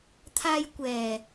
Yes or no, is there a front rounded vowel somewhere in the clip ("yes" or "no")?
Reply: no